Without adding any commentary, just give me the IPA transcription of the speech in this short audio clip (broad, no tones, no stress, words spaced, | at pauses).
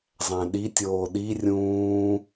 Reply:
zˤæ̃ɗitʲoː ɗi rʲũː